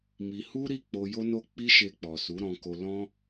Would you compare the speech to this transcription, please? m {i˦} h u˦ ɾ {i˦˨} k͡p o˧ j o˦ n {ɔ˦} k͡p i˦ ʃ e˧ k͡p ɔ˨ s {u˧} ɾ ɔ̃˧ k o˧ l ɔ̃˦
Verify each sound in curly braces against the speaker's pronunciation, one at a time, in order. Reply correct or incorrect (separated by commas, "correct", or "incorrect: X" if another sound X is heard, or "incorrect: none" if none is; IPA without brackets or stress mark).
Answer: incorrect: i˧, correct, incorrect: o˦, incorrect: u˨˦